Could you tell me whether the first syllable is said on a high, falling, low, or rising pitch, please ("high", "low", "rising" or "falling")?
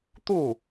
falling